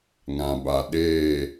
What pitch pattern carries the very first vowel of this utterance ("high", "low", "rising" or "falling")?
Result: low